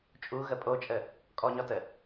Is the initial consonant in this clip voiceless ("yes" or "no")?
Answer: yes